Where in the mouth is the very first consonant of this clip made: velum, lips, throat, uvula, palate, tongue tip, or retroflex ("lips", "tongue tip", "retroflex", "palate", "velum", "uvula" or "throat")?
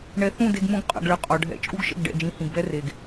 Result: retroflex